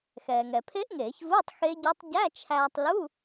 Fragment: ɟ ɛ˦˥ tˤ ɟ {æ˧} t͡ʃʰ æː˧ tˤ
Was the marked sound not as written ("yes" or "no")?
yes